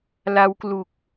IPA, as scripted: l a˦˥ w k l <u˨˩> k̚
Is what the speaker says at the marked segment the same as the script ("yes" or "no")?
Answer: yes